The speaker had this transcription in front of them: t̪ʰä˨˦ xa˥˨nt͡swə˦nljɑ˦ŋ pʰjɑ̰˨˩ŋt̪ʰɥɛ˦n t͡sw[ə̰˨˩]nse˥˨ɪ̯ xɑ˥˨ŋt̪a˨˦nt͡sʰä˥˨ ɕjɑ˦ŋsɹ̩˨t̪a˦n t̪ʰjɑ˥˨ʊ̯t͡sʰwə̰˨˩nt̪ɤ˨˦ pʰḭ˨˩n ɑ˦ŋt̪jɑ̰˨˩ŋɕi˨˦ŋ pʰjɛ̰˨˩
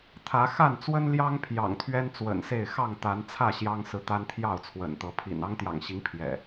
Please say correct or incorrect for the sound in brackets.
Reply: correct